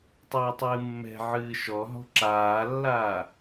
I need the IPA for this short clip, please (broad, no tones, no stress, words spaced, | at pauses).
tˤɨːtˤɨːmːɛ̤ ʕɨːʃɔɦɔ̤ ǁaːlːaː